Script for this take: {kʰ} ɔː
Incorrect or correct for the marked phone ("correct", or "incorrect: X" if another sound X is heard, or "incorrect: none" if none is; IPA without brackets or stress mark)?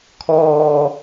correct